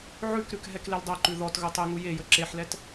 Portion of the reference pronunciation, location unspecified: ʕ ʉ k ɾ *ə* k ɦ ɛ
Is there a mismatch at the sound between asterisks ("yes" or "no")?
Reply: yes